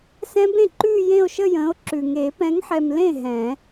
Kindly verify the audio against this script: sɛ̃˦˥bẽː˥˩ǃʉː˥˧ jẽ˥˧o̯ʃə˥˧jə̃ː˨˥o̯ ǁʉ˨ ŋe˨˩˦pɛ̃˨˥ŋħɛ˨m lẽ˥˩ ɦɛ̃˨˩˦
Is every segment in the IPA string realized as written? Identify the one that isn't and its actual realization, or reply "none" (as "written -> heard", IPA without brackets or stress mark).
ẽː˥˩ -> ẽ˥˩